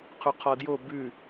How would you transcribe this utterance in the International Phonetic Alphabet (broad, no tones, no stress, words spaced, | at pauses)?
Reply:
qʰuqʰɒdjo bʉ